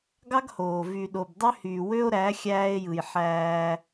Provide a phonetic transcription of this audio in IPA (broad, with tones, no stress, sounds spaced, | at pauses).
ɡ ɑ˦ ɡ h oː˨ v y˨ ɗ o˨ b dˤ ø˦ h yː˨ w ø˦ o̯ ɾ æ˨˦ xʲ æː˦ e̯ j ɯ˨ j ħ æː˦